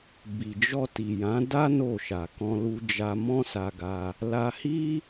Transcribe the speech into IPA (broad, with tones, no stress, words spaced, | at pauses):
bi˨d͡ʒɔ˧ ti˨jã˨˦da˦ no˦˨ʃa˨ kɔ̃˧lu˧ d͡ʒa˧ mɔ̃˦sa˧ɡa˧ | la˧ hi˦